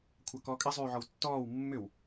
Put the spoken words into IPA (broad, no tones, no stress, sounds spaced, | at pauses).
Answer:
kʷʰ a k ɔː kʼ ɪ zˤ yː ʕ ɔ w tː ɔː w mː ʏ w